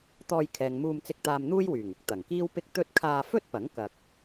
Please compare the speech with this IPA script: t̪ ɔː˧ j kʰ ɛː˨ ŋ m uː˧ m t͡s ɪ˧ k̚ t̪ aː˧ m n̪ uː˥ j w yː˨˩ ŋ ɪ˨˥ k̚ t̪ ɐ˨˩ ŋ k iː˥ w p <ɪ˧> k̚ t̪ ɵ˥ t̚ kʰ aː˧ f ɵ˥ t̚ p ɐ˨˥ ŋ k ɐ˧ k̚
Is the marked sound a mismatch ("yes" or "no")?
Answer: yes